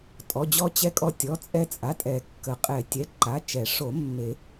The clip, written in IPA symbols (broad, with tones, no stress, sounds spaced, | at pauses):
tʼ ɔ˩˧˩ d͡ʑ ɔ˧ t͡ɕ ɛ˧ kʼ ɔ˧ tʲ ɔ˩˧˩ t͡sʼ ɛ˧ t͡sʼ a˩˧˩ tʼ ɛ˨˩˦ kː ə˨˩˦ qʼ ɛ˨˩˦ tʲ ɛ˩˧˩ ǃ a˩˧˩ t͡ʃ ɛ˨˩˦ ʂ o˨˩˦ mː e˨˩˦